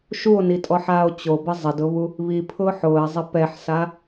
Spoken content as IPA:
ʃ u o̯ n i tʼ ɔ ħ aː o̯ t͡ɕ o b ɪ zˤ ɪ d ʊ β u | β i pʰ ʊː ħ ʊː e̯ zˤ ɪ p ɛ ħ s a

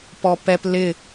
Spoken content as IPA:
p ɔ p ɛ p l ɪ

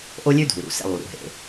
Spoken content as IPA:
ʔ o˦ lʲ ʉ˦ dʱ u˨ ɾ ṵ˨ s ḛ˦ lˠ u˨ ɾ ṵ˨ ɦ ḛ˨

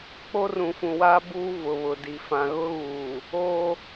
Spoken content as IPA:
k͡p o˦ r ũ˨ f ũ˨ w aː˦ b uː˦ v ʊ˨ β ʊ˨ d i˨ f ã˨ ɣ ʊ˦ ɣ uː˨ | oː˦

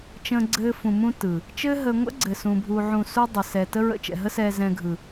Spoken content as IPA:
t͡ʃ ə̃ː˧ ɡ͡ǀ ɘː˧ f ũ˨ m ũ˧ t ɯ˨ | t͡ʃ ɘː˦ ɦ ə˧ ŋʷ ə̰˦ ɡ͡ǀ ɘ˨ s ũ˧ bʱ u˧ ʕ ũ˨ s u˦ dˤ ə˨ s ɛ˨ t ə˦ ɹ ə̰˧ t͡ʃ ɛ̰˨ ɦ ə˦ s ɛː˧ z ɛ̃˧ ɡʱ ɯ˨

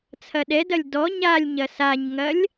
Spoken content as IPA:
t͡sʰ ɐ ɗ ɛ d ɐ lʲ d ɔ ɲ a lʲ ɲ ɐ s a ɲ ŋ ɐ lʲ

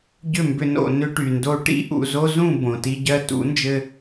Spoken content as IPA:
ɟ ʏ˦˨ m b ʏ˧ n o̰˨ n ʏ˧ ʈ y˨ n d o˧ ʈ ḭ˦ ʔ ṵ˧ z o˦ z ũ˦˨ b õ˨ t i˧ ɟ ɜ˧ t ṵ˨˦ n d͡ʒ ɘ˧

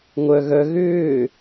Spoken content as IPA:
ŋʷ œ ɣ œ ɣ ʏː

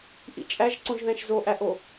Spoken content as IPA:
ʔ ḭ t͡ʃʼ æ ʒ ǀ õ ʒ ð æ̃ ʃ z o ʔ æ ʔ o

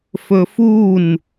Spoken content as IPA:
f ɵ f u n

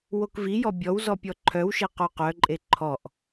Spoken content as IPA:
w o k v i j ɔ bʲ ɔ w z ɔ pʲ ɔ ǃʰ œ w ʃ e q o q œ ǃʼ e ǃʰ ɔ ʔ

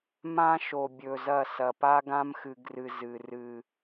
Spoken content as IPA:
m ã˦ ʃ o˨ bʲ ɵ˨ z ɐ˦˨ s ɐ˨ p a˦ ɡ ã˦ m x ɨ˨ ɡ r ɨ˨ z ɨ˨ r ɨ˨

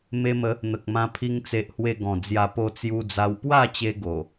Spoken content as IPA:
m e˧ m ə˨˦ | n̪ ə˨ k̚ m ã˧ pʰ i˧ ŋ t͡s e˨ ʔ h w e˧ ɡ ɔ̃˨˩ d͡z j a˧ p o˧ t͡s j u˧ d͡z a˧ w p w a˥˧ t͡ɕ e˧ ɡ o˨˩

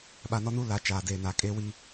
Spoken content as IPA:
ɓ a˨ n ɔ˦ n uː˦ l a˨˦ t͡ʃ aː˨ d eː˨ n aː˨ kʼ eː˦ w i˦

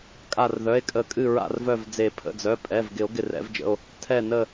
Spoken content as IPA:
kʼ a˧˩ r ð œ˩˧˩ e̯ kʼ ə˨˩˦ kʼ ɨ˧˩ ɹ a̰˧˩ r v œ˧˩ v d͡z e˨˩˦ pʰ ə̰˩˧˩ d͡z œ˩˧˩ pʼ ɛ˩˧˩ v ɡ ɪ˨˩˦ o̯ ɡ ɪ˧˩ r ɛ̰˨˩˦ v d͡ʒ ə̰˩˧˩ o̯ | tʰ ɛ˧˩ n ə˧˩

